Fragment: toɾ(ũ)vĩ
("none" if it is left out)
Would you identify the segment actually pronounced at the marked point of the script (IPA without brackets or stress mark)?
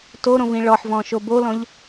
õ